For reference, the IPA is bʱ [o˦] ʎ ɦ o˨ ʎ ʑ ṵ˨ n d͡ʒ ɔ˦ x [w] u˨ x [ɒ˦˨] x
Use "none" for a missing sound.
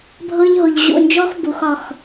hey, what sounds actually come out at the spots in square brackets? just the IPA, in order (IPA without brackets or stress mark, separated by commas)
ɤ˦, b, ɒ˦˨